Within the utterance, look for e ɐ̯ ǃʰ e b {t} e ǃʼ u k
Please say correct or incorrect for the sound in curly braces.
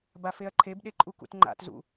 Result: incorrect